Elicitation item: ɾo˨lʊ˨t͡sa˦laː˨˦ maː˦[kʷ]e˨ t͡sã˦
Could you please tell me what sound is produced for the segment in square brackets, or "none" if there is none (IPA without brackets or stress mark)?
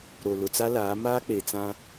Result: k͡p